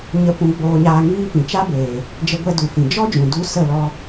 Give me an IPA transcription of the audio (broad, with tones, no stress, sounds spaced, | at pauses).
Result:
ɲ ə˧ p ũ˧ ɡ͡b oː˧ ɲ aː˧ ŋ iː˦ p ĩ˨ t͡ʃ a˦ b eː˨ | d͡ʒ ə˧ ɡʷ ɛ˧ d u˨ f ĩ˨ d͡ʒ ɔ˦ d͡ʒ ũ˨ d u˦ s ə˦˨ l ɔ˧